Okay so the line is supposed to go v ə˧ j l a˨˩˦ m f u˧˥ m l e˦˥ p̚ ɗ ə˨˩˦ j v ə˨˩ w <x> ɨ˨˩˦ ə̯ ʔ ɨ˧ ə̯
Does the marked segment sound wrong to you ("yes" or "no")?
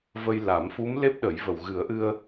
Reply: yes